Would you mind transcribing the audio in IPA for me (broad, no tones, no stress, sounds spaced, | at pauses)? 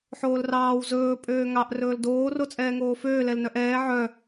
ħ oː l r ɑː w z ɵː pʼ øː ŋ ɑ ʔ r ɵː l d oː r o t͡sʼ ɛː ŋ oː f øː l ɛ l n œ ʔ ɛː ʕ œ